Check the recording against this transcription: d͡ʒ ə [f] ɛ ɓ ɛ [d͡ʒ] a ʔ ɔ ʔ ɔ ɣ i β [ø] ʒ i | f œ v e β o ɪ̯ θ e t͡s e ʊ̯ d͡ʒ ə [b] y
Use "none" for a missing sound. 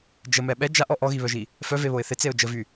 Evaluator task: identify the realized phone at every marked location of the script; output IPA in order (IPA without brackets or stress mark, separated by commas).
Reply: m, d͡ʒ, œ, v